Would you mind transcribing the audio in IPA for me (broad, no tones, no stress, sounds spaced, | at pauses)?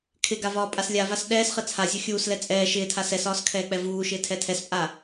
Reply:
kʰ ɪ ɡ a v ɒː pʼ a s lʲ a v a s ɗ ɛː s χ ɘ t͡sʰ a zʲ ɤ xʲ uː s l ɛ t͡sʼ ɛː ʃ ɪː tʰ a s ɛ s ɒː s kʰ ɛː k͡p ɛ v uː ʃ ɪː tʰ ɛ tʰ ɛ s pʼ a